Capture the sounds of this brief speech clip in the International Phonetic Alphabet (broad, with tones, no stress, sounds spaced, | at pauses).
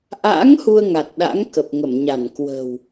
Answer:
ʔ a̰ː˧˥ ŋ h u˧ ə̯ ŋ a˨˩ t̚ ɗ a̰˧˥ ŋ k ə˨˩ p̚ ŋ ə˧˩ m ɲ a˧˩ n k w ə̤˨˩ w